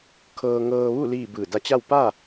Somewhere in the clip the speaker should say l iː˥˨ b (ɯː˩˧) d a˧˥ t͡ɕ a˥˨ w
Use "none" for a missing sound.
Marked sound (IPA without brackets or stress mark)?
ɯː˧˩